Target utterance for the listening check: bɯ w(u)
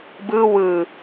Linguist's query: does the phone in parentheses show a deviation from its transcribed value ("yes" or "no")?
yes